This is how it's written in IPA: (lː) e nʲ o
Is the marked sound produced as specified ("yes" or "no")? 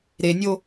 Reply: no